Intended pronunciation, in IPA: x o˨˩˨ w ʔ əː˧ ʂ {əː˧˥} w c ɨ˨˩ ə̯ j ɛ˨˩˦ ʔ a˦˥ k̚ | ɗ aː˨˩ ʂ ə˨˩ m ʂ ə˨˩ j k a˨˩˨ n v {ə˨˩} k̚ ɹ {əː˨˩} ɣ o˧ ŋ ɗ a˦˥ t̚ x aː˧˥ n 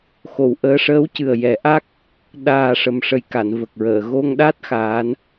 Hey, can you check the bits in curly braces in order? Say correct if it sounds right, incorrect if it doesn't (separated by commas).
correct, correct, incorrect